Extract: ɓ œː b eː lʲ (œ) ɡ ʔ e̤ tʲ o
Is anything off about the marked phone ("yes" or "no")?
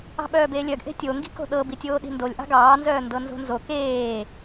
no